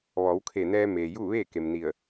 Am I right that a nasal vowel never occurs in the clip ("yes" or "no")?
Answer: yes